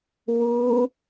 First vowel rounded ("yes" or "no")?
yes